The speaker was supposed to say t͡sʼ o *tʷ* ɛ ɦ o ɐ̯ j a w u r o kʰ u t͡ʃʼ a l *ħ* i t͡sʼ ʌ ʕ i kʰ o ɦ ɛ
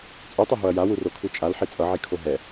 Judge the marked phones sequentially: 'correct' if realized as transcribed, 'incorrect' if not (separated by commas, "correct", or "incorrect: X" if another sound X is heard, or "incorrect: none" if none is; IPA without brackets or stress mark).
incorrect: tˤ, correct